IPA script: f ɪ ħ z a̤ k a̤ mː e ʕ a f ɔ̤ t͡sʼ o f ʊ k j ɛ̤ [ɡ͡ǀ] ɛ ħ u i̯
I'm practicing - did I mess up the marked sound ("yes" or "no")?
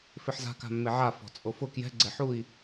no